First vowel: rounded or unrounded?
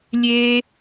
unrounded